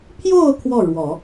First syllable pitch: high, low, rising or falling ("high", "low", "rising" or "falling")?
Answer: falling